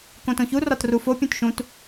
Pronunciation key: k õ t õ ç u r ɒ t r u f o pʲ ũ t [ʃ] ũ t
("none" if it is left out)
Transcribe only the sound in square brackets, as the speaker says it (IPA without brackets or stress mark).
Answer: ʃ